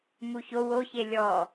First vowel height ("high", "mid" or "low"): high